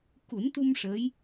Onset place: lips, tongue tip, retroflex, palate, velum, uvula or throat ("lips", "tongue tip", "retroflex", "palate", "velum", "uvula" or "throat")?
velum